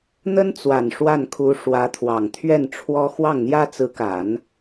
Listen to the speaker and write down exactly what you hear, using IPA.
n̪ə˥nt͡swa˨˩n ʂwa˥˩nkʰu˧˥ ʂwä˧˥t̪ʰwɑ˨˩ŋt̪ʰɥɛ˥˩nʈ͡ʂʰwɔ˥ xwɑ˥˩ŋn̪jä˥t͡sɹ̩˧˥ka˨˩˦n

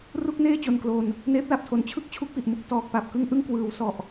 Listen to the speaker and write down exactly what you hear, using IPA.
ru˥˩k̚neː˥˩ t͡ɕo˧nklo˧n | neː˦˥p̚la˨˩p̚tʰo˨˩n t͡ɕʰɯ˥˩k̚ t͡ɕʰu˦˥k̚pi˨˩ʔmu˥˩k̚ tɔː˨˩k̚ pa˨˩p̚kɯ˥˩ŋ ʔɯ˥˩ŋkwɯː˩˦wsɔ˨˩ʔ

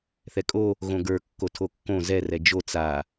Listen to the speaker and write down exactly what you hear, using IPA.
θɛkʼo | ɣõɡə˞ kːotʰokːõ zɛ rɛd͡ʒo t͡sa

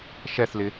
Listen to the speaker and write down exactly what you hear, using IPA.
ʃɛθlɪ

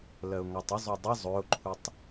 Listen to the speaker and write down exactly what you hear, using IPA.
lɜʊ̯ŋɔtˤəzˤo dˤə zˤɵʊ̯ǃʰutˤ

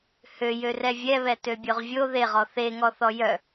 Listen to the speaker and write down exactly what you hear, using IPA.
hø jørɛvʲɛβɛ tøbʲoʁvʲo ðeʁɔ θeŋɔθɔ jœ

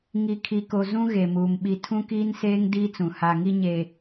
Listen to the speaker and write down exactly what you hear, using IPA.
ŋi˨ kʰi˨ko˨ zũ˦ ɣe˨muː˨m ɓi˨ tʰũ˦kiː˦nseː˦ŋ diː˦t͡sũ˨ ha˨ŋi˦ ɲe˦

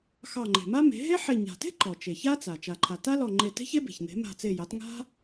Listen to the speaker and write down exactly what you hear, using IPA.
xɑ˧˩ŋ͡ǃe̤˩ma˥me̤˩˥ ɦe˥ħe˧˩ ɲa̤˩te̤˥ ǃɔ˩ t͡ʃe˩ça˥t͡sa˩ t͡ʃa˩ǃʰa˩ ta˥lɔ˧˩ŋ͡ǃe˧˩te̤˥ç e˥be̤˩çn̪e̤˩˥ ma̤˧˩t͡se˧˩jɑ˩˥t ŋa̤˥

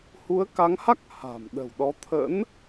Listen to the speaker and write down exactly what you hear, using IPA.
hu˨˦ə̯ka˨˦ŋha˦˥k̚ ha̤˨˩mɗə̤˨˩wɗɔ˨˦ t̪ʰə̰˧˥n

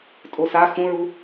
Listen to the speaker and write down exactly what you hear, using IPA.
tʼosa xũɹu

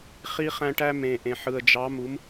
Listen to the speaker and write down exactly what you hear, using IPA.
χi˦χæ̃˦ʈæ˦ mẽ˨ʔẽ˨ ħɯ˨ə̯d͡ʒɑ˨˦ mu˨˦m

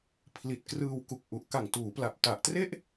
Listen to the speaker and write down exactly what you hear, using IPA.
pʰli˨˩t̚krɯː˧wku˨˩k̚ʔu˨˩ʔ ka˨˩ŋtuː˩˦pla˨˩p̚ ta˨˩ʔtre˥˩ʔ

